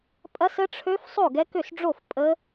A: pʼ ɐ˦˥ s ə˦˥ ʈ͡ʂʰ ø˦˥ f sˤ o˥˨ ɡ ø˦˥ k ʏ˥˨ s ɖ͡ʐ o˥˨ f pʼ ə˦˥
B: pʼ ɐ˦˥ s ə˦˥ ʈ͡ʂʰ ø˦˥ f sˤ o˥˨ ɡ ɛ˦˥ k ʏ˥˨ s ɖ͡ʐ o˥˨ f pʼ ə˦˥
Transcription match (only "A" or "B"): B